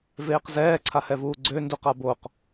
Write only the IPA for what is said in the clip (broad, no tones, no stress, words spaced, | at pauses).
veːqzɛː ǀʰahɛvuːɡ͡ǀø nduqaboq